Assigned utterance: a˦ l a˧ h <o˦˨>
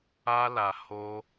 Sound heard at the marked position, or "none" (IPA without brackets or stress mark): o˦